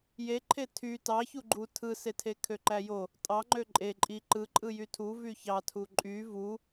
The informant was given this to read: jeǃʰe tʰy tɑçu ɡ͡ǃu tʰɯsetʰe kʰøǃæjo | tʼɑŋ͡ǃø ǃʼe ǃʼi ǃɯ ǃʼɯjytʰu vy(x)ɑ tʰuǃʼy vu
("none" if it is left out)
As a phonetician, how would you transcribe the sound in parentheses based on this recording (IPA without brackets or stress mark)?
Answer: ç